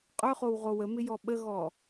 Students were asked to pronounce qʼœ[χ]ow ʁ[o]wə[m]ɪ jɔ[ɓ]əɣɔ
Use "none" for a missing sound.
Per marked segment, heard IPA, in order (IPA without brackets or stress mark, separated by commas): χ, o, m, ɓ